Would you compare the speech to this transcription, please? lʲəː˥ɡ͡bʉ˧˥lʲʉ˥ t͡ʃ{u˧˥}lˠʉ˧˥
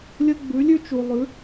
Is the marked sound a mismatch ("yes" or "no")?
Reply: yes